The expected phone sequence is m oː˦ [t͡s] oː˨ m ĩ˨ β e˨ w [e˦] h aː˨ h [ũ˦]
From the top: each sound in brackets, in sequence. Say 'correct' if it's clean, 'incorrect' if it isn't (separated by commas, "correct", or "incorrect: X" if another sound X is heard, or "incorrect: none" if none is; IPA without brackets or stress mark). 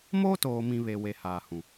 incorrect: t, incorrect: e˨, incorrect: ũ˨